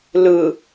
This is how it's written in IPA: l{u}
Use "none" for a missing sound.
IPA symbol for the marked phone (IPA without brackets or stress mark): ɯ